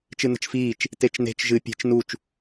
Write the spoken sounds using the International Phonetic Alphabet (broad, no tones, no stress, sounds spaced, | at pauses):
t͡ʃ ɨ n ə̤ t͡ʃ f iː t͡ʃ | t e t͡ʃ n e̤ t͡ʃ ʒ ɨ pʲ e̤ t͡ʃ n u t͡ʃ